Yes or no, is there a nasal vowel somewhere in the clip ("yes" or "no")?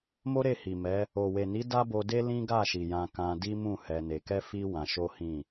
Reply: yes